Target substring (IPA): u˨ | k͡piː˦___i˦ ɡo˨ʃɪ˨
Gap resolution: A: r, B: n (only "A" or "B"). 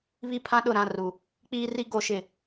A